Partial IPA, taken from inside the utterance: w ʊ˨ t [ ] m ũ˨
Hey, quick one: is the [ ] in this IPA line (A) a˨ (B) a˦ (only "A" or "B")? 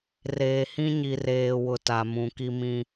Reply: A